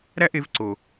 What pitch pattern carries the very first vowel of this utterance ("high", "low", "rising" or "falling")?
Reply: high